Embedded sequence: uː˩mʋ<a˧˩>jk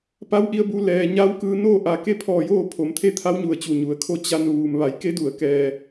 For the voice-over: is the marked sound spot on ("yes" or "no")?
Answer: no